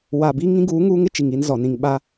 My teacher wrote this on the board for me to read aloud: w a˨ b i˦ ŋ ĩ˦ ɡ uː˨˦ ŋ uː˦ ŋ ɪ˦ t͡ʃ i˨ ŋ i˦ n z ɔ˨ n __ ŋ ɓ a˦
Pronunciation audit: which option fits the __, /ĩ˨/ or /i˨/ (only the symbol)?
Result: ĩ˨